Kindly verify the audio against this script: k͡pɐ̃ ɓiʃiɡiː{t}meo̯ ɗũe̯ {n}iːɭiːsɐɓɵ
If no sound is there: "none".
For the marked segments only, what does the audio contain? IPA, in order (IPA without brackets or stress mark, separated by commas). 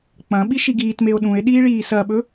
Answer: t, ɗ